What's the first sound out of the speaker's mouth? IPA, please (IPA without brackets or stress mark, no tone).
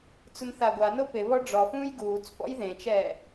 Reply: t͡s